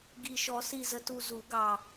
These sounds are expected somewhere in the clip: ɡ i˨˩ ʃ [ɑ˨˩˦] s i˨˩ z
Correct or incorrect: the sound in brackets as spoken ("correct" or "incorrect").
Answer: incorrect